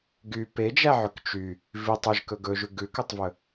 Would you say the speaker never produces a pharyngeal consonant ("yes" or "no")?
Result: no